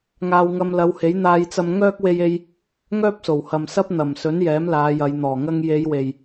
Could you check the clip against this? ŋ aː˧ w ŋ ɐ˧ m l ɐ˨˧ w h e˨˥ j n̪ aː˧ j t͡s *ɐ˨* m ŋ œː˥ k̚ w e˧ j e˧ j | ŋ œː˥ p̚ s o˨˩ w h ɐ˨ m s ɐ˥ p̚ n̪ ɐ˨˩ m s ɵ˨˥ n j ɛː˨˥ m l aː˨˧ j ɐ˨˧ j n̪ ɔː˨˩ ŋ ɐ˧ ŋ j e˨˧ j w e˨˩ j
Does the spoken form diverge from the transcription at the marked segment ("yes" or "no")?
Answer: yes